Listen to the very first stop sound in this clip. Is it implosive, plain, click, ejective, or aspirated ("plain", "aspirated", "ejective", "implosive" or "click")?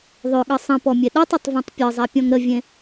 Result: implosive